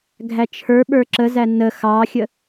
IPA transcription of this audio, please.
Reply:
ɡʱ æ t͡ʃʰ ə˞ ɓ ə˞ ǁ ə z æ n ə x ɑ xʲ ə

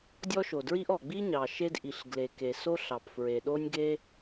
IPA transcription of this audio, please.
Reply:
dʲ ɔ˥ ʃ o˩ d ɹ i˥ ʔ ɔ˩ ɡ͡b i˥ ɲ ɑ˩ ʃ e˥ d ʔ i˩ ɬ ɡ l e˩ k e˩ s o˥ ɬ ɑ˩ p f ɹ e˩ ɗ o˥ nʲ ɡ e˥

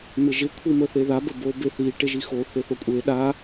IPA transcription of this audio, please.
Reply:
m ɪ ʒ ɪ kʷʰ i m ə θ e ð a b ə b o b e θ i ʈ e ʒ i x o θ e θ o kʷʼ e ɗ a

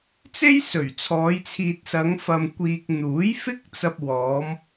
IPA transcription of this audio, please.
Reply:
t͡s e˥ j s ɵ˨˩ ɥ t͡sʰ ɔː˨˧ j t͡sʰ iː˨ t̚ s ɐ˨˧ ŋ f ɐ˨ m kʷ iː˨ k̚ n̪ uː˨˥ j f ɪ˥ k̚ t͡s ɐ˧ p̚ w ɔː˨˧ m

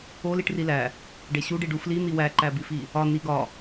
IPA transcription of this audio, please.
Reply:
o l i ʈ r i l æ | ɖ e ɕ u ɖ i ɖ u f l i n̪ i w æ ǃ æ b i f i | ɒ n i ɡ ɒ

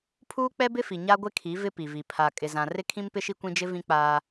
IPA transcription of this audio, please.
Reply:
pʰ uː˦ k͡p ɛ˦ b ɪ˦ f i˨ ɲ a˦ ɡʷ ɪ˦ kʰ i˨˦ v ɪ˦ p i˨ v i˨ pʰ a˨ kʼ ɪ˨ z ã˨ r ɪ˦ kʰ ĩ˦ m p ɪ˦ ʃ i˦ kʷ ĩ˦ d͡ʒ ɪ˦ v ĩ˦ k͡p aː˦

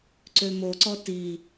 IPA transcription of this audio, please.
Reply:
ǀ ø m o ǀ ɔ t i

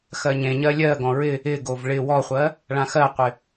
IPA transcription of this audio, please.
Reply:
x ɜ ɲ ẽ ɲ ɜ lʲ ɜ ɡ ɔ̃ ɹ ɪ | ɪ ɡ o v ɭ ɪ w ɔ χʷ ɜ | ɭ ã x ɜ qʷ ɪ

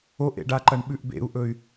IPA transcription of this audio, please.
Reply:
o ʔ ḛ ɖ a ǃ ɐ ɳ ɓ ʉ ʔ b ḛ u̯ ʔ ɵ y̯

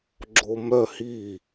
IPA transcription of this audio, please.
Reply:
ɡ͡ǁ o m œ h i

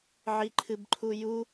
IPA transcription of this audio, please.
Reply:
ʕ i ǃʰ ɨ b ǃʰ u j u

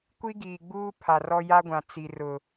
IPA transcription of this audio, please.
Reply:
kʷ i˦ ɡ iː˨ ɡ͡b uː˦ pʰ a˨ r ɔ˦ j a˦ ɡʷ ã˨ t͡s i˨ r ʊ˨

